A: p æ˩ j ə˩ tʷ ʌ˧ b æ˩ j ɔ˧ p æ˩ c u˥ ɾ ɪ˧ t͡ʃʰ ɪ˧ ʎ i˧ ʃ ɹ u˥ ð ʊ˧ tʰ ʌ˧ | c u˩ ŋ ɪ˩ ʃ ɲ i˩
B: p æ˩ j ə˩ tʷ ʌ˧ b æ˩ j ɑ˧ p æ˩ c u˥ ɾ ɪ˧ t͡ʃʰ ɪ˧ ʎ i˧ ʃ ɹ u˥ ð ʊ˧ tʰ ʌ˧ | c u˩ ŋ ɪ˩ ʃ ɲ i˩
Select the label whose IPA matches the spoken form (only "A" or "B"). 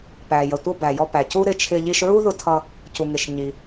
A